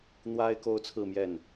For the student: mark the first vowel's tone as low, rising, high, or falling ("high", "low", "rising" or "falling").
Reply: high